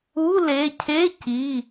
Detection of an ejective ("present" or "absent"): absent